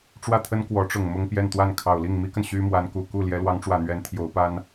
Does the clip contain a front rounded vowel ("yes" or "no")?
yes